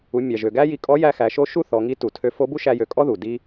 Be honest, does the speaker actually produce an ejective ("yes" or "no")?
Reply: yes